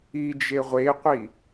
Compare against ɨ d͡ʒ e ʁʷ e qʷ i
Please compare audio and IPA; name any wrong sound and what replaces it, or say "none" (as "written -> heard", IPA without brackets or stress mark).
ɨ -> i